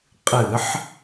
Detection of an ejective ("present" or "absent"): present